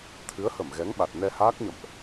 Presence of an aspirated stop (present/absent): present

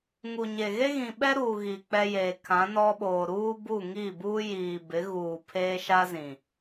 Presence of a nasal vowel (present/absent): present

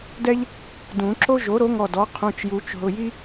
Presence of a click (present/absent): present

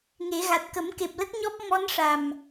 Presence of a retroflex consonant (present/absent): present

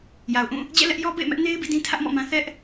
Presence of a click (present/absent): absent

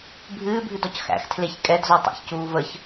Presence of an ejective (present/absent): present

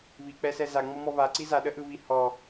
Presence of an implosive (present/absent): present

